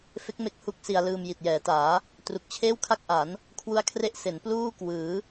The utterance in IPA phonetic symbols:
f e˦˥ k̚ m e˦˥ k̚ h u˥˩ k̚ s i˧ a̯ l ɯː˧ m j i˨˩ t̚ j ɛː˩˦ t aː˩˦ | t r u˨˩ k̚ t͡ɕʰ eː˥˩ w kʰ a˥˩ k̚ ʔ a˩˦ n | kʰ w u˦˥ a̯ kʰ r e˦˥ ʔ s e˩˦ n p l uː˥˩ k w ɯː˩˦

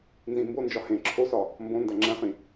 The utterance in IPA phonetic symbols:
n z ĩ m b o n d͡ʒ ɒ h ẽ ǁʰ o s ɒ | m b õ n d æ ŋ͡ǁ æ̃ χ ĩ

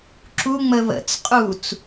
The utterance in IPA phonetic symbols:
ǁ u ŋ͡m ə β ə̰ t͡s qʼ u t͡s

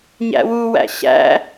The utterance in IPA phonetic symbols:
ɲ æ̰ w u w æ̰ ɕ æ̰

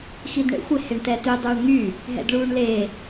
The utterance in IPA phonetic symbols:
x i d ɳ ḛ xʷ ɪ h e ɳ t ɛ t y dˤ uː ɳ ŋ y | ɦ ɛ̰ d ɭ uː ɳ l e

